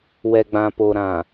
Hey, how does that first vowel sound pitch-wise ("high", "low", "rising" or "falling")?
low